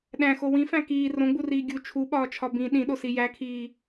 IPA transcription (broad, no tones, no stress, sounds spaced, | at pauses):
ɗ æ̃ x o w ĩ f æ̃ k iː r õ ɡ͡b u r iː ɡʲ u t͡ʃʰ u ɓ ɒː t͡ʃʰ ɒ b ĩ ɗ ĩ ɗ o s i j æ kʰ iː